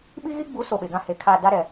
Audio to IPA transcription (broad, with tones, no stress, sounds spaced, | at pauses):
ɓ i˦ ɣ i˦ ɡ͡b u˨˦ s o˨ ɓ e˨ ɡ ã˦ h e˨ kʰ a˦˨ d a˦ ɾ ɛ˨